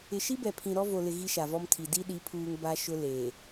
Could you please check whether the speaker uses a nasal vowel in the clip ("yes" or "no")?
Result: yes